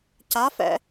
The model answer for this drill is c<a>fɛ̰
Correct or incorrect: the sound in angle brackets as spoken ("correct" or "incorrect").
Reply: correct